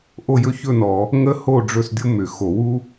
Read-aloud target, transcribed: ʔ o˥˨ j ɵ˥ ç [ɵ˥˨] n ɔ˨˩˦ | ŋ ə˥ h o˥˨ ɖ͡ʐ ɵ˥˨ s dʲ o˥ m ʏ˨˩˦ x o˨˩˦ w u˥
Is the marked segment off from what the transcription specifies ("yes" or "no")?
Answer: no